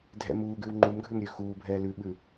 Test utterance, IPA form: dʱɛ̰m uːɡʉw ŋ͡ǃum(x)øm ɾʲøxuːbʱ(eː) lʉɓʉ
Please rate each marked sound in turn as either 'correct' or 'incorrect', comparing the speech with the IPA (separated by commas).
incorrect, incorrect